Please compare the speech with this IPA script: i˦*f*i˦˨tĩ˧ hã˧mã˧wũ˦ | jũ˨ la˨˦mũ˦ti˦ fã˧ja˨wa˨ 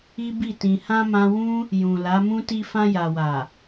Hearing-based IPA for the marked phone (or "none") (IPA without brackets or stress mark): b